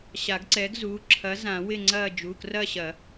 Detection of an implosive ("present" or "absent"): absent